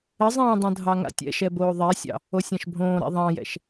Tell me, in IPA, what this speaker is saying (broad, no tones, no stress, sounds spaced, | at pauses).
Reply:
ə zˤ ɛ̃ː dˤ õ dʱ ɑ ŋ a̰ tʲ ɛ̰ ʃ ɛ b oː ðˤ ɛ sʲ ɑ̰ | o sʲ ɑ̃ ʃ bʱ õː ɾ a̰ ðˤ ɑ̃ j ɛ̰ ʃ